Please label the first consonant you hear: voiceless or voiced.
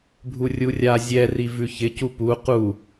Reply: voiced